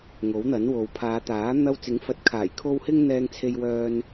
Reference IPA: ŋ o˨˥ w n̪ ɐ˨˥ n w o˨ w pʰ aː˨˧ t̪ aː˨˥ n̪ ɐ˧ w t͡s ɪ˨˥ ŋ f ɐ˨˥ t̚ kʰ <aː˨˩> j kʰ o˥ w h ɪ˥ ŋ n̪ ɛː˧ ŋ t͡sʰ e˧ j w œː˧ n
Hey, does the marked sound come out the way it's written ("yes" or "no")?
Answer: yes